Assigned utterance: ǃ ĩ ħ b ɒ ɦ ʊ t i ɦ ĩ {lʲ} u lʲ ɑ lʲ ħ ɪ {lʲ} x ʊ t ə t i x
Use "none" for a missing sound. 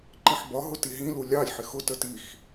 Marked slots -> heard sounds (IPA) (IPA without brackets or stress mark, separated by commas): l, none